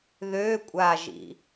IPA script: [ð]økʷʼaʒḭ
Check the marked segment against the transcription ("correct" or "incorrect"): correct